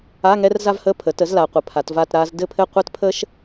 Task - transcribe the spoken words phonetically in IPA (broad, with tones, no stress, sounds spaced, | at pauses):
a˧˥˧ ŋ ɛ˥ r z a˥ v h ə˧˥˧ pʰ ə˩˥ t ə˩˥ z l a˩˧ qʷ ɘ˩˧ pʰ a˩˧ t v a˥˧ t ɾ a˥ z d ɘ˥˧ pʰ ɘ˥˧ qʷ ɘ˥ t pʰ ə˥ ʃ